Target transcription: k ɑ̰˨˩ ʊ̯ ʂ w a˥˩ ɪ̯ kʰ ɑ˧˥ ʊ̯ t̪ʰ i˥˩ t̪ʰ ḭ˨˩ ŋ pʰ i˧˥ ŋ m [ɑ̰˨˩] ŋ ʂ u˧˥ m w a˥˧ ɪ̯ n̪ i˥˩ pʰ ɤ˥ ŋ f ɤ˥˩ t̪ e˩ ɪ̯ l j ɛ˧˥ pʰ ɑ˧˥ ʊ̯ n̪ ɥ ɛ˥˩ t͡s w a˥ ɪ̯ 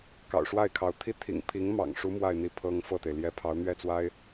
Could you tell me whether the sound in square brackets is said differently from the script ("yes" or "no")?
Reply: no